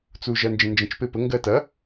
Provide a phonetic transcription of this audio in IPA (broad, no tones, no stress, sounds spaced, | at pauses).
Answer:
t͡s u ʒ ɐ n d͡ʒ ə̃ n d͡ʒ ə̃ t͡ʃ p e p ə ŋ ɡ ɜ t ɐ